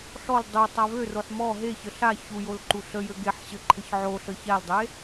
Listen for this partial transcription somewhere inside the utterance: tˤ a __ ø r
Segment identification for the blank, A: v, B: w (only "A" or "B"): A